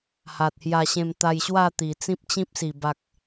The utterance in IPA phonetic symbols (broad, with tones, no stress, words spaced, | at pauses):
ha˨t̚hja˧ ɕẽ˧m t̪a˧jɕwa˥˧t̪i˨˩ t͡sĩ˦p̚t͡ɕĩ˦p̚si˨˩ ba˨k̚